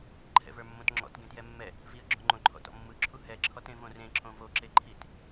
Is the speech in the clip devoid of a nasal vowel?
no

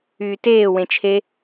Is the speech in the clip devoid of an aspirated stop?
no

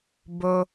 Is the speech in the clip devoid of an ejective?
yes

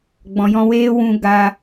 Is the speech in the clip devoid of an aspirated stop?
yes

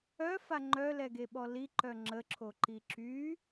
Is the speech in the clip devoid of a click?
no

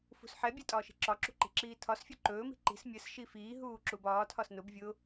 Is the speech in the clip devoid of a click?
no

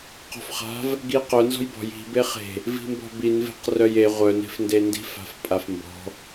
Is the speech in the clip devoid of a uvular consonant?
no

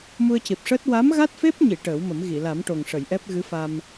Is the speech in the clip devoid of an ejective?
yes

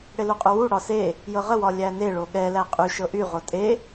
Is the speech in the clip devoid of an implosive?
no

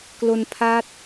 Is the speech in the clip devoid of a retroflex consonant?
yes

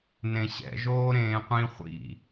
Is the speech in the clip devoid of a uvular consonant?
no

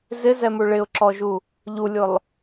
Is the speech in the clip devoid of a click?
no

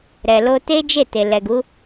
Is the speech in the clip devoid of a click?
yes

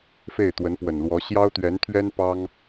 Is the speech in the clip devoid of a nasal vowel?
yes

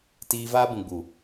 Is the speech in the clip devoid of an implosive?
yes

